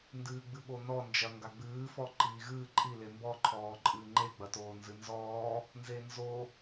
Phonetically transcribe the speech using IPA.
n d ɨː ɡ͡b ɨ ɓ o n ɔ n d͡ʒ ɐ ŋ ɡ a ɡ͡b ɨː f ɔ ǃ iː ɣ ɨː ǃʼ i l e m b ɔ ǃʰ ɔː ǃʼ ɨː ŋ͡ǃ e ɡ͡b ɐ t oː n z ɨ n z ɔː | n z e n z o

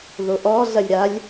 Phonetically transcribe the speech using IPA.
ð o ʔ ɔ ɮ ɐ lʲ ɾ a lʲ

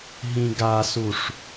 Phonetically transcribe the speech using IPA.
ɦ ĩ ɡ a s u ʂ

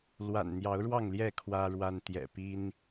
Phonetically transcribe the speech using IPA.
l w a̰˨˩ n n̪ j ɑ˨˦ ʊ̯ ɻ w ɑ˥˨ ŋ l j ɛ˥˨ kʰ w ä˦ ɻ w a˦ n t̪ j ɛ̰˨˩ p i˦ n

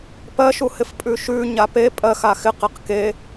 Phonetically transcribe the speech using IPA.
p ɜ ʃ u h ɪ f pʼ ʉ ʃ ʉ ɲ a p e pʼ ɜ x a x ɪ q e q k e

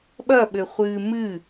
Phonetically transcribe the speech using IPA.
ɓ ɐ ɓ ɘ χʷ ɨː m ɨ

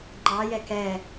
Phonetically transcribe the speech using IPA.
ŋ͡ǃ ɑ j ɛ k ɛ

